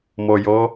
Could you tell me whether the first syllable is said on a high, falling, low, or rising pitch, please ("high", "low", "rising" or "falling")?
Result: low